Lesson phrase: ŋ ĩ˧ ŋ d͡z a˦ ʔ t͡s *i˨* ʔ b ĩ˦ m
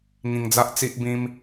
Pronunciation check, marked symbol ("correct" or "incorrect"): incorrect